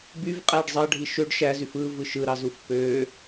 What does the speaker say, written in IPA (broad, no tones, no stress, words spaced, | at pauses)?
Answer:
byvqʼæɖ zˤɑɖʱi ʃøɖ ʃæzyf ɯvɯ ʃɯɾɑzuf pø